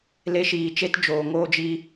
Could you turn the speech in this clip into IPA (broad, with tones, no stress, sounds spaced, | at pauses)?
l e˧ ʃ iː˨ t͡ʃ e˦ t d͡ʒ oː˨ ŋ oː˦ d͡ʒ i˦